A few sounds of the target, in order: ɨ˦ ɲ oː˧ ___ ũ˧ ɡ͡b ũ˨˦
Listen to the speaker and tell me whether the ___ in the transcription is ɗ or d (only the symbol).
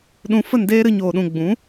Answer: ɗ